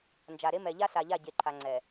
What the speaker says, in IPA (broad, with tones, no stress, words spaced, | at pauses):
nd͡ʒa˨ɾe˦ mɛ˨ʎa˦sa˨ʎa˦˨ ɟe˨ǃʰa˨ŋ͡ǀɛ˨